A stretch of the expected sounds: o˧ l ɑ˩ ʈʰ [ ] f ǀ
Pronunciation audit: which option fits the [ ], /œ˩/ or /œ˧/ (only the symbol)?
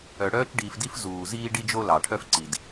œ˧